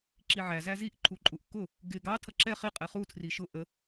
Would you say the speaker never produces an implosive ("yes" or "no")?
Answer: yes